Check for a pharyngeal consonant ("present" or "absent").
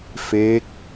absent